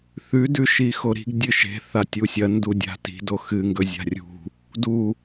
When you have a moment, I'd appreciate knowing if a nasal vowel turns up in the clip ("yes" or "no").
no